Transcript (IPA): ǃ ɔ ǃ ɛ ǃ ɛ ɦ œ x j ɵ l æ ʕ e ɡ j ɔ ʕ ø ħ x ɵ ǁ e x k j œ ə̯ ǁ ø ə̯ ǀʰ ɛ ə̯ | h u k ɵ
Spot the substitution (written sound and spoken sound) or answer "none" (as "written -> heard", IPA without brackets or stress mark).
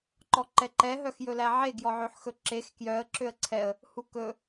none